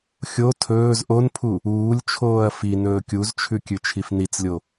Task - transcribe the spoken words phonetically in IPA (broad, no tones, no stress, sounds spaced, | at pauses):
xʲ o tʰ ɵː z ʔ o n pʰ u | uː lʲ t͡ʃʰ oː ɐ̯ f i n ɵː kʲ u z t͡ʃʰ ʉ kʲ ʉ t͡ʃʰ i f n i t͡s lʲ o